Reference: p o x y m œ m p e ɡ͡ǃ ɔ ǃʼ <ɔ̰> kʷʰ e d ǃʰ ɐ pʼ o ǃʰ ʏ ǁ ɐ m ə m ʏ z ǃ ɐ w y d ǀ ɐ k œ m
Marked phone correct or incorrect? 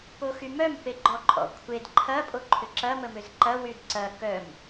correct